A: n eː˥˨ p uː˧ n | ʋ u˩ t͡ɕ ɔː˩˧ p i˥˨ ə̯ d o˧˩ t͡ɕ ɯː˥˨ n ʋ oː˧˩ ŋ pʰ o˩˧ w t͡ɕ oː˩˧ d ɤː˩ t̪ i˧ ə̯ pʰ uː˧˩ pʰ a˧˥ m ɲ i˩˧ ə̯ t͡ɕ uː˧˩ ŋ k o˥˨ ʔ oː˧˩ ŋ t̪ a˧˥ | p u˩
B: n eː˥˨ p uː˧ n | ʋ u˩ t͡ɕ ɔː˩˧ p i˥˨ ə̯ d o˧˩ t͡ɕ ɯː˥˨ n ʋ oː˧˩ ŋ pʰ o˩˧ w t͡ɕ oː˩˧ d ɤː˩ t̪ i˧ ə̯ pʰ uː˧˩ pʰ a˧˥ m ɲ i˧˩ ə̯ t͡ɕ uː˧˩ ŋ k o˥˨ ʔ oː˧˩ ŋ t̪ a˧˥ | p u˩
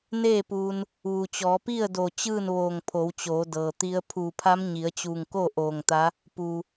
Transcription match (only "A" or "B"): A